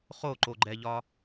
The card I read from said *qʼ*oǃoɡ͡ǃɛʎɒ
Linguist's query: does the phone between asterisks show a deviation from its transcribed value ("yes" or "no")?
yes